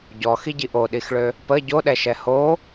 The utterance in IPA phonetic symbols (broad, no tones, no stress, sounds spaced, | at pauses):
ɟ ɔ x i ɟ i ʔ o ɗ i x ɭ ø | p ə ɟ o ɗ ɛ ʃ ɛ h o